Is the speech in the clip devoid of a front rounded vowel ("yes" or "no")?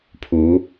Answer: yes